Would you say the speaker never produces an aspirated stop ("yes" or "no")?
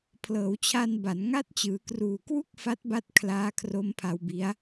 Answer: no